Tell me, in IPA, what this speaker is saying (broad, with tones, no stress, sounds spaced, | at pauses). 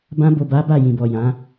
b ã˧ b o˨ b a˨˦ b a˦˨ j ĩ˨ b ɔ˨ j ã˨˦